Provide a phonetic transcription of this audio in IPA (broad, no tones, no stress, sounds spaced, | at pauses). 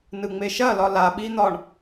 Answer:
n ɯ ŋ͡m e ʃ ɐ l ɒ l a ɓ i n̪ ɒ ɳ